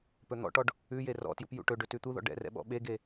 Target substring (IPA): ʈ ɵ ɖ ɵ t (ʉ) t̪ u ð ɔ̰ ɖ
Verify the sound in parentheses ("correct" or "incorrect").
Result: correct